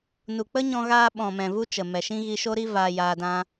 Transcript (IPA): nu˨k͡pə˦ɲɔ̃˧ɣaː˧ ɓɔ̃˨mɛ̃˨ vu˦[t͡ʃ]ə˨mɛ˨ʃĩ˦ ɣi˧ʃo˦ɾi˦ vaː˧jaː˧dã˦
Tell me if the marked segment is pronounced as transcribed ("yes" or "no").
yes